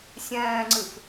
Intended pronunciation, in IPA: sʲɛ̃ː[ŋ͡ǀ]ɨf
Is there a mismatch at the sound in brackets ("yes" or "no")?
no